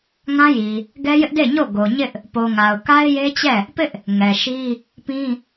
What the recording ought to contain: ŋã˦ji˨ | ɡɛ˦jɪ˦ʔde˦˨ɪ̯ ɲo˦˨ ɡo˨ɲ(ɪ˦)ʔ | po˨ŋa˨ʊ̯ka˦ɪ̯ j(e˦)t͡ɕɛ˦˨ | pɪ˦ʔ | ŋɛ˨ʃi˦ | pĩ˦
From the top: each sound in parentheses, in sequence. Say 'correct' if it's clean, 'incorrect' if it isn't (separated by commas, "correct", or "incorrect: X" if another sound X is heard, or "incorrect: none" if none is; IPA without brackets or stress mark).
correct, correct